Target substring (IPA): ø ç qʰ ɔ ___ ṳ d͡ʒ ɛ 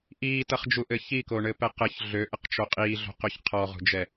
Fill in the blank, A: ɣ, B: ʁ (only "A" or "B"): B